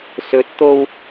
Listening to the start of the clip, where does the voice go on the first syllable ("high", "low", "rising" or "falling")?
rising